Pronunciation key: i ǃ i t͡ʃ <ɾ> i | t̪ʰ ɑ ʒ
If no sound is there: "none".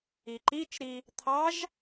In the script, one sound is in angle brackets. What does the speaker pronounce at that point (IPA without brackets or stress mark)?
ɾ